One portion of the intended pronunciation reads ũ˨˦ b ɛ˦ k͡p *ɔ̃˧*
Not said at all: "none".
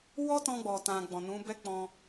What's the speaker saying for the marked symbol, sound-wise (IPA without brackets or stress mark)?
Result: ɔ̃˧